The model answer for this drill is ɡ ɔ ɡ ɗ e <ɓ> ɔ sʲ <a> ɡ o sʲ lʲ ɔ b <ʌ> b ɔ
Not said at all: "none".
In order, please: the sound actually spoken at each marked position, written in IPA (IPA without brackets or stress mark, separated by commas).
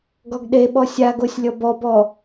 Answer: ɓ, a, ɔ